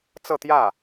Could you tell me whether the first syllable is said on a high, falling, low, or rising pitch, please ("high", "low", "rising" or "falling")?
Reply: falling